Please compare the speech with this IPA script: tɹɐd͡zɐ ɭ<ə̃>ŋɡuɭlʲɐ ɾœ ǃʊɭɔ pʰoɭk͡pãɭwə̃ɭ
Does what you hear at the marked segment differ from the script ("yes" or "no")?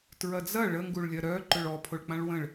yes